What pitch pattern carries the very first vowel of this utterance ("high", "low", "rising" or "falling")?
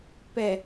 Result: low